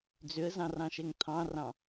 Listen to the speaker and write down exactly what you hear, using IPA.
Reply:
d͡z ʏ ə̯ z ɑ̃ r ɑ̃ ʃ ɛ ŋ t̪ʰ ɑ̃ r ɑ̃

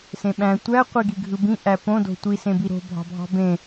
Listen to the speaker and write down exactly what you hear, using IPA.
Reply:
s ẽ ɓ æ̃ tʷ æ qʷ i ɡ i ɡʱ ɯ b ĩ ʔ æ p õ d o̤ tʷ i s ẽ b i ɾ o̤ bʱ ɑ̤ bʱ ɑ̤ b ẽ

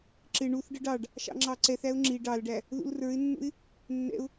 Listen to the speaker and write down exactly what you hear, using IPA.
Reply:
ǁ ɪ ɳ u θ ɖ ə ɖ ɑ ɖ | ʃ ɑ̰ ŋ͡ǁ ɑ ǀ ɛ θ æ ʊ̯ ŋ͡ǁ i ɖ ɑ l ɖ æ | ð ṵ l r ə˞ ɪ̯ nː ṵ ɪ̯ | nː ɛ̰ ʊ̯

